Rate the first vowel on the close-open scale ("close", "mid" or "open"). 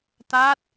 open